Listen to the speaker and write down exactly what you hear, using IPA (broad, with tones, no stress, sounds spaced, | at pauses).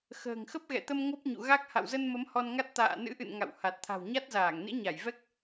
x ə̤ː˨˩ ŋ x ə˦˥ p̚ ɣ ɛ̰˧˨ t̪ ə˧ m ŋ o˦˥ p̚ ɲ ṵ˧˨ ɣ a˦˥ k̚ h a̰˧˨ w z ə˧ n m ə˨˦ m h ɔ˧ n ŋ a˦˥ t̚ t̪ a̰ː˧˨ n ɨ̰˧˥ ʔ ɨ̰˧˨ n ŋ a̰˧˨ w h a˨˩ t̚ t̪ʰ a̤˨˩ w ɲ a˦˥ t̚ z aː˧˩ ŋ n ḭ˧˥ ɲ a˧˩ j v ɛ˦˥ k̚